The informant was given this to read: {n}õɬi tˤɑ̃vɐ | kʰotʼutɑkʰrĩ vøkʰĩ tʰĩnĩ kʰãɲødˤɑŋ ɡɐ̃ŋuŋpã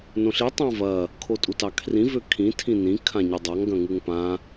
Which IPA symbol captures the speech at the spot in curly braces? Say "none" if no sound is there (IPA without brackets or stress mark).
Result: n